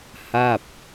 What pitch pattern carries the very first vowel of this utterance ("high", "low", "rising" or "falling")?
falling